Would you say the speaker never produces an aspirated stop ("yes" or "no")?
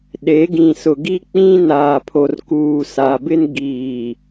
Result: no